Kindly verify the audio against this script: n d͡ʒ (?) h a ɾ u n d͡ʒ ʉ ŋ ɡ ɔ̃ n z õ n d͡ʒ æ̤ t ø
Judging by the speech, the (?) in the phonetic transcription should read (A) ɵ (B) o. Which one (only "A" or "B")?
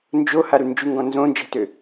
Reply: B